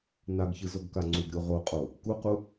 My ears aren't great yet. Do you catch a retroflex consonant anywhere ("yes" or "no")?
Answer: no